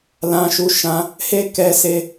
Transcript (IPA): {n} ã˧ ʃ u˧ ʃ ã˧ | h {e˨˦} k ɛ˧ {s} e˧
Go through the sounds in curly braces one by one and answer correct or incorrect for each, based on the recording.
incorrect: l, incorrect: e˦, correct

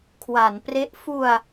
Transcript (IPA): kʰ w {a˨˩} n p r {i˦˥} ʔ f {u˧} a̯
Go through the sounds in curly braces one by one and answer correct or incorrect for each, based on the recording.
incorrect: a˩˦, incorrect: e˦˥, correct

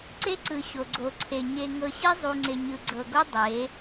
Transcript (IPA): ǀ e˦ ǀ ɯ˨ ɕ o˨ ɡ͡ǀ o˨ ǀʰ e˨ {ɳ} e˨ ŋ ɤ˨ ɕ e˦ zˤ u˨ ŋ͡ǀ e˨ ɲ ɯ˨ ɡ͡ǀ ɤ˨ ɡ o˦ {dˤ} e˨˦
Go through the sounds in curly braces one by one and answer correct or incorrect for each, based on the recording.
incorrect: ɲ, correct

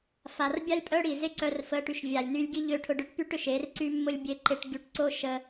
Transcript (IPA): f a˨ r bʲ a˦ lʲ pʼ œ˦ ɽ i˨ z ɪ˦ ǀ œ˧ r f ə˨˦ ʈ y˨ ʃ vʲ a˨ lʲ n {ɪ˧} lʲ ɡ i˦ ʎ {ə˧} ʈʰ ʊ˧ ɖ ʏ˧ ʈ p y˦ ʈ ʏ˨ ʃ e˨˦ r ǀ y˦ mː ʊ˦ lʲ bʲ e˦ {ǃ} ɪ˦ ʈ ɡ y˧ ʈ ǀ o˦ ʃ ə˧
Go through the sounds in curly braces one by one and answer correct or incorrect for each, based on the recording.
incorrect: y˧, incorrect: ø˧, correct

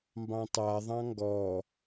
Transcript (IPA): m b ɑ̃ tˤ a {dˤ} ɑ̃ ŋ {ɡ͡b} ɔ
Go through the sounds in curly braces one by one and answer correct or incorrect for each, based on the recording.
incorrect: ðˤ, incorrect: ɡ

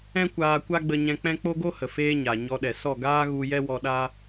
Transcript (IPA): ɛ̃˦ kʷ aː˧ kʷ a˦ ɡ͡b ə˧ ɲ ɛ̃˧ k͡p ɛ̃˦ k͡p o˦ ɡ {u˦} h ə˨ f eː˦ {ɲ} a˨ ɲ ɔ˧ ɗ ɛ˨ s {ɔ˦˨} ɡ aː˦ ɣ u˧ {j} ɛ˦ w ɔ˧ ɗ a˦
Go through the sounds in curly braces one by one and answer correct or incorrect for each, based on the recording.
incorrect: o˦, correct, correct, correct

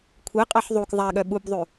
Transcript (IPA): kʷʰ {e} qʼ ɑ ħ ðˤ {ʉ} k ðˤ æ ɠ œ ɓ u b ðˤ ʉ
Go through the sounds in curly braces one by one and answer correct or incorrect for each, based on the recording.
correct, incorrect: u

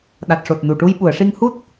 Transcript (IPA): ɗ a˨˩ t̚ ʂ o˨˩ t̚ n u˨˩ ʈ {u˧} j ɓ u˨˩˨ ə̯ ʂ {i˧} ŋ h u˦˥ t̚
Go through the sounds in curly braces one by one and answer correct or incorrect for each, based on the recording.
correct, correct

